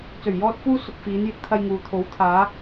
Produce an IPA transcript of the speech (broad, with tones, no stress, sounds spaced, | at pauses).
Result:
t͡s ɵ˨˩ ɥ j ɔː˧ t̚ f uː˧ s ʊ˨ k̚ f iː˨˧ n j ɪ˨˥ k̚ t̪ʰ ɐ˧ j ŋ uː˨ t̪ʰ o˨˥ w t̪ʰ aː˨˧